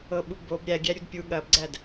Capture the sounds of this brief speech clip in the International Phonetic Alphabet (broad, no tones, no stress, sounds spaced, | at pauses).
ɤ ɓ u b o b ɾʲ æ ɡʲ æ ɾʲ u d pʲ u ɠ ɐ b ɡ͡ǀ æ d